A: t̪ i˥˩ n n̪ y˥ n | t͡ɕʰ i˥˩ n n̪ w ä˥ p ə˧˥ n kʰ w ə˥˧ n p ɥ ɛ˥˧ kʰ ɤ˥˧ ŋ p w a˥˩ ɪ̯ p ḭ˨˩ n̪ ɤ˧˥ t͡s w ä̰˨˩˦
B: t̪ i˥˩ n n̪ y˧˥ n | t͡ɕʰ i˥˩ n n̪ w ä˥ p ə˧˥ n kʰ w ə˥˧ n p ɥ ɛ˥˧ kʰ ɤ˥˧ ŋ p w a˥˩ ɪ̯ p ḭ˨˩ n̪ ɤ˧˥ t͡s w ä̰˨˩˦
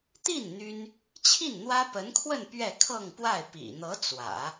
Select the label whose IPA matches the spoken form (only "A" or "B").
A